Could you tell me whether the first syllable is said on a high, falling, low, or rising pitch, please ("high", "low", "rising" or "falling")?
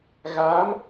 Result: rising